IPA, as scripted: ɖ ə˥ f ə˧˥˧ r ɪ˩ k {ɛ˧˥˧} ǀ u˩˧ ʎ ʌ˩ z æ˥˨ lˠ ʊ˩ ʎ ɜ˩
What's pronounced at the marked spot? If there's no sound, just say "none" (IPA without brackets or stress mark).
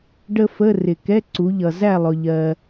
ɛ˧˥˧